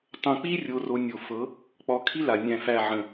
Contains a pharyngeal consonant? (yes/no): yes